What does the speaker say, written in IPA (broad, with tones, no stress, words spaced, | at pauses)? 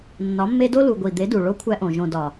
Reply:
nːɒ˨˦mːe˦ do˦lu˨ ɡʷi˨d̪e˨˦du˨ ɭo˦kʷʰæ˦ʔõ˨ ʒõ˨dɒ˨